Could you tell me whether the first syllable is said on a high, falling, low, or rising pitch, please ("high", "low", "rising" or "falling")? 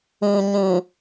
low